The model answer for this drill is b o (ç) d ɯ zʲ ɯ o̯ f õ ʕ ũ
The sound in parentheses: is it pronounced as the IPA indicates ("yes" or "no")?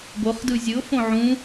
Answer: no